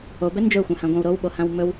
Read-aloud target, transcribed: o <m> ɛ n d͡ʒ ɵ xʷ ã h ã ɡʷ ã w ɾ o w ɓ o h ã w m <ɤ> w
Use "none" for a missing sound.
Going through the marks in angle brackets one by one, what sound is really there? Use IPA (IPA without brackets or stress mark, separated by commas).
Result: b, ɵ